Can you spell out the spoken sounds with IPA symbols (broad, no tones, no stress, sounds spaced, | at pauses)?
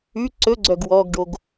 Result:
ʉ ǀ ɵ ɡ͡ǀ œ ɡ w ɔ ɡ ɖ o ɡ